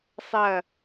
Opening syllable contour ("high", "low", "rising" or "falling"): falling